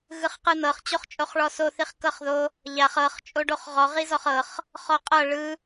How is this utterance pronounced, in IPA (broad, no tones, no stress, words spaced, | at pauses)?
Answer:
ɣɯχqɯn̪ɤχ t͡ɕoχt͡ʃʼoχɭɔso θiχkɤχðo | ʎaχ ɤχ t͡ʃʼoɖoχʁɔ ʁizɔχɤχ | χɔqʼɤ ɭɯ